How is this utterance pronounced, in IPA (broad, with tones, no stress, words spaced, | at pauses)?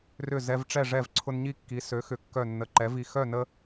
rʏ˥˨ zɛ˦vʈ͡ʂɛ˥˨ʐɛ˥˨v ǀʰʊ˦nɲi˥˨kːi˩˥ sø˩˥xʏ˩˥ kːœ˧˩nːə˩˥ ǃɛ˩˥vi˧˩ xœ˥˨nə˦